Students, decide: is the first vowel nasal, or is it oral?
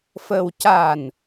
oral